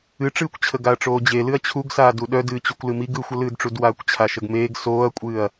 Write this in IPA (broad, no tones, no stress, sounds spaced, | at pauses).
ɨ ʈ͡ʂ ɨː kʷ t͡ɕʰ ə ɡ a ɐ̯ ʈ͡ʂ oː d͡ʑ e l ɨ ɐ̯ t͡ɕʰ u ɡ s aː d u ɗ œ d ɨː t͡ɕ u kʷ l ɨ m i ɡ ɯ xʷ ə l ɨː d ʈ͡ʂ u d w aː kʷ t͡ɕʰ a ʃ ə ɡ m eː ɡ s oː ɐ̯ kʷʼ ɨː ɐ̯